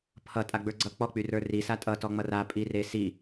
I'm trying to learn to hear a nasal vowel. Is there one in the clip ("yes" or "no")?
no